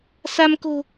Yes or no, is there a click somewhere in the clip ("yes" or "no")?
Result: no